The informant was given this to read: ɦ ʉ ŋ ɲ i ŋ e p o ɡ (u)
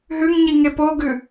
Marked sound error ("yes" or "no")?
yes